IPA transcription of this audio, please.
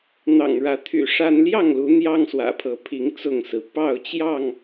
n̪ ɑ̰˨˩ ŋ ɻ ä˨˦ t̪ʰ y̰˨˩ ʂ a˦ n l j ɑ˥˨ ŋ l u˨˦ n̪ j ɑ˦ ŋ s w ä̰˨˩ pʰ ɤ˨˦ pʰ i˨˦ ŋ t͡s ʊ˥˨ ŋ s ɹ̩˩ p ɑ˥˨ ʊ̯ t͡ɕ j ɑ˥˨ ŋ

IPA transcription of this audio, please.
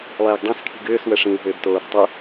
lˠ ɛː ɡ dˤ æ̃ s kʰ i̤ ɡ ʏː s w ə ʂ ĩ w ɦ ʏː b t oː ɾ æ̤ tˤ ɵ

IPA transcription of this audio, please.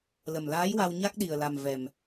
l ə˨˩ m l aː˧˥ j w a˧ w ɲ a˦˥ k̚ ɗ i˨˩ ə̯ l a˨˩ m v ɛ˨˩ m

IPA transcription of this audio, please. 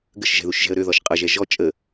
ɡ ə ʃ ʒ ɛ̤ ð u ʃ ʒ ɛ̤ ə̯ ɾ ø ð ɔ ʃ qʼ ɤ ʒ ɛ ʒ ɔ t͡ʃʼ ə

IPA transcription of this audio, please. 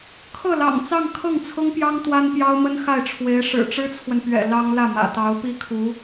kʰ ɤ˥˩ l ɑ̰˨˩ ŋ t͡s ɑ˥˧ ŋ kʰ ɤ˥˩ ŋ t͡sʰ ʊ˥ ŋ p j ɑ˥ ŋ t̪ w a˥ n p j ɑ˥ ʊ̯ m ə˥ n x a˥˩ ɪ̯ ʈ͡ʂʰ w e˧˥ ɪ̯ ʂ ɻ̩˨˩ ʈ͡ʂ ɻ̩˥ t͡sʰ w ə˨ n p ɥ ɛ̰˨˩ l ɑ˥ ŋ l ä˥˩ m ä̰˨˩ t̪ ɑ˧˥ ʊ̯ p i˥ kʰ u˧˥

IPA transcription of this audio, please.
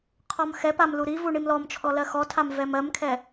qʰ ɔ m x ɛ p a m l u ɾ i v u ɳ i m l ɔ m t͡ʃʰ ɔ l ɜ x ɔ tʰ a m v ɛ m ɜ m kʰ ɛ

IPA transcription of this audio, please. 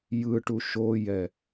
j ɯ ʈ u ʃ o j ɛ

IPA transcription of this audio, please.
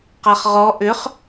q a χ ʁ ɔ ʔ ʏ χ

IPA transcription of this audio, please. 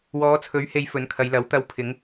w ɔː˨˧ t͡sʰ ɵ˨˥ ɥ h e˨˧ j f ɵ˨˥ n kʰ ɐ˨˧ j l ɐ˨˥ w t̪ ɐ˨˥ w pʰ ɪ˨˧ ŋ

